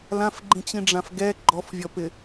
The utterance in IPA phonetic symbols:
l ã f ɡ͡ǃ ĩ t͡ɕ ĩ ɖ͡ʐ ã f ɡ ɛ ɡ͡ǃ ɔ f vʲ ɔ p ɪ

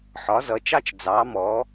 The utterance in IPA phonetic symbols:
ħ ɒ˨˥ z ʌ˨˥ t͡ʃ ɑ˥ t͡ʃ d͡z ɑ˨˥ m ɔː˨˥

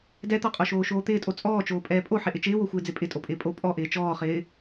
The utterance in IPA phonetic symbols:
d ɛ t̪ ɔ qʼ o ʃ oː ʃ oː t̪ ɪː tʼ o t͡sʼ ɔː t͡ʃ oː pʼ ɛː pʼ o ħ ɪ ʔ ɪ t͡ʃ ɪː w o xʷ ɪː d͡z ɪ pʼ ɪ tʼ o pʼ ɪː pʼ o pʼ ɔ ʔ ɪː t͡ʃ ɔː χ ɪː

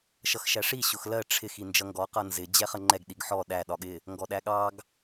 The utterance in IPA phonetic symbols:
ʃ ʌ x ʃ æ ʂ i ɕ ʊ x l ɜ ʈ͡ʂʰ ɪ x i n d͡ʒ ʌ ŋ ɡ ɔ q ʌ n z ɪ d͡ʑ ɛ χ ə ŋ͡ǃ ɛ ɡ ɗ i ɡ ħ ɔ ɗ æ ɗ ɒ ɠ ɪ | ŋ ɡ ɔ ɗ æ ɠ ɑ ɡ

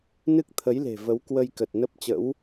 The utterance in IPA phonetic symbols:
n ɨ˦˥ k̚ t̪ʰ ə˨˦ j l e̤˨˩ v ə˨˦ w k w ə˧ j k ə˨˩ t̚ n ə˦˥ p̚ t͡ɕ ə̰˧˥ w

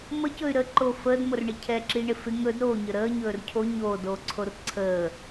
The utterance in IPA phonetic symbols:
m ə c ɵ y̯ ɾ ə ǃ o f əː d m o r ɳ ɪ cʰ ɛ ǁ i ɳ ɪ f ɪ ŋ ɵ d ɾ oː ɲ ə ɾ əː ɲ ɵː r cʰ o ɲ oː d oː ǀʰ o r ǀʰ əː

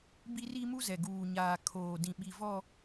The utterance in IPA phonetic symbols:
b i˦ r i˦ m u˦ z ɛ˨ ɡ uː˨ ɲ aː˨ kʰ oː˨ d ĩ˨ ɓ i˨ v ɔ˦

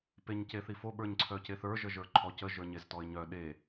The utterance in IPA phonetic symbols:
p e ɲ c e θ i f o ɓ ə˞ ɲ ǀʰ œ c e θ ə˞ ʒ ə ʒ ə˞ ǃʰ ɔ c ə ʒ ə˞ ɲ e z t ɔ ɪ̯ ɲ œ ɗ e

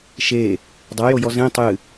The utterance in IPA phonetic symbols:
ʃ e | dˤ a j o j ɔ z ẽ tˤ ɨ

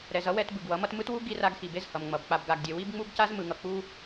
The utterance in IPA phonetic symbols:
ɾ ɛ˨ z ʌ˦ w ɛ˦ t b ɯ˨ ɡ w ʌ˨˦ m ʌ˦ t m ɯ˦ t w u˦ ɡ i˦ r a˦ ɡ x i˨ b e˦ z h ʌ˨ m ŋ͡m ʌ˨ b k͡p a˨ b ɡ a˨ ɡ dʲ e˨ w i˦ b ŋ͡m u˦ ɡ c a˦ z m ɯ˨ ŋ ʌ˨ k͡p u˦

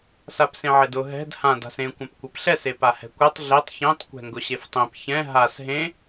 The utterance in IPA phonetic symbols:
s a p s ẽ ʕ e d ʊ ɦ ɛ̤ d h ã d a̤ s ẽ kʷ ã p kʷ ɛ p ɬ ɛ s e p a h ɛ̤ kʷ ɛ tˤ ɮ e tˤ ç ẽ tˤ kʷ ɛ̤ ŋ ɡ ʊ ɕ e f tˤ ẽ p ç ɛ̃ ɦ a s ɦ ẽ

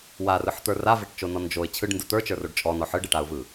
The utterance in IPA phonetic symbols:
w a r ɯ ħ t̪ ə˞ r a v e ʈ t͡ʃ o n ɔ n d͡ʒ o ɪ̯ t͡ɕʰ ɯ ɖ n d ɯ t̪ ə˞ t͡ʃ ə˞ r o ɖ t͡ʃʼ ɔ n ɔ ħ ɯ ɖ e ʈ a ʊ̯ v ɯ

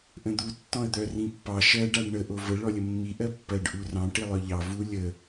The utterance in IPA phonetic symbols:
ʔ ə̃ d̪ u tː ɔ̃ ə̯ d̪ œ r ĩ pː ɑ ʃ ɜ ɖ a ɖ ɳ ə ʔ o v ə ɭ ɔ lʲ ə mː i ʔ ɜ pː ɜ ɖ ʔ u r ɑ̃ ʈ i lˠ œ ʎ ɑ v u lʲ ə

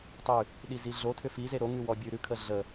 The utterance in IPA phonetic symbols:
tˤ ʉ | ɗ i z i ɮ o tʰ ʏ f i z e ɾ o ŋ ʉ w ɔ bʲ ʉ ɾ ʉ kʰ ə ɮ ə

